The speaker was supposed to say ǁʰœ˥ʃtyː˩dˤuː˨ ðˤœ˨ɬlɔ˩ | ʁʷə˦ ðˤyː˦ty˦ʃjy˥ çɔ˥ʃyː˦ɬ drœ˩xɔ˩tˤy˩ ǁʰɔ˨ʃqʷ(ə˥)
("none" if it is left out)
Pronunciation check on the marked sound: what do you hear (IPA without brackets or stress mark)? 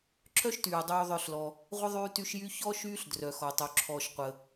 ə˩